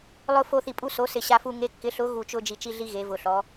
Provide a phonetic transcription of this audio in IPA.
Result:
lˠ ʊ˦ f o˦ θ i˧˩ pʼ u˦ s o˨˥ s ɪ˧˩ ɕ a˦ f u˦ ŋ e˨˥ kː ɪ˨˥ ɬ ʊ˨˥ ɣ u˧˩ t͡ʃ ʊ˦ d͡ʒ i˧˩ t͡ʃ i˦ ɮ i˦ ɣ e˨˥ v ʊ˧˩ ɬ ɔ˨˥

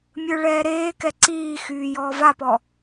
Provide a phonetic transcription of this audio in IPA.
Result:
mʲ ə˞ ɭ ɛː ɾ eː k ɛ ǀ iː x yː j ɔː v a p ɔ

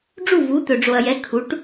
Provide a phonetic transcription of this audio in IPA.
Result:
ɖ͡ʐ u˥˨ v u˨˥ t̪ ɵ˨ ɖ͡ʐ o˨ ɐ̯ j ɛ˨˥ kʰ u˨˥ ʈ

